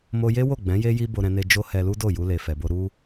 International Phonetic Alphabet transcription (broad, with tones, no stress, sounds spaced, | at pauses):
m o˧ j e˦ w o˦˨ ɡ͡b ɛ̃˨˦ j e˦ j i˦ b o˧ ɾ ɛ̃˧ n e˧ d͡ʒ o˦ h ɛ˧ l u˦ d o˦˨ j u˧ l e˨ f ɛ˨ b o˧ ɾ u˦